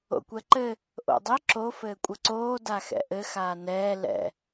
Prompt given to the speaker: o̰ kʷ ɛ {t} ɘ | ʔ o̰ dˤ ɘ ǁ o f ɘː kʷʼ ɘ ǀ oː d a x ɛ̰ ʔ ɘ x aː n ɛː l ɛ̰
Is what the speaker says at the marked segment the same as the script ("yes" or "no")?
no